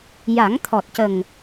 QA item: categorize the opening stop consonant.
aspirated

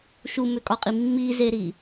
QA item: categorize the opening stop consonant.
ejective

